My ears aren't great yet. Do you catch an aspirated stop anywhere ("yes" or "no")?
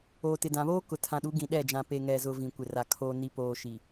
yes